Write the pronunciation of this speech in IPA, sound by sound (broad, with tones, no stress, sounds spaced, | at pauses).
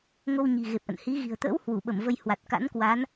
ŋ o˧ w ɲ i̤˨˩ ɣ e˨˩ p̚ ʔ ə̰˧˨ n h i˨˦ ɣ i̤˨˩ ə̯ t̪ ə̰ː˧˥ w h w u˧˩ ɓ ə˧˩ m v ə˧ j h w a˨˩ t̚ k a̰˧˥ n k w a˨˦ n